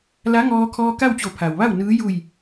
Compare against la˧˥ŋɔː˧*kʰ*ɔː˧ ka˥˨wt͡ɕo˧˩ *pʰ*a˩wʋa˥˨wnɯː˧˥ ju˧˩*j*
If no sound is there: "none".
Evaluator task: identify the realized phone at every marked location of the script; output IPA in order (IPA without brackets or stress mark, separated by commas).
kʰ, pʰ, j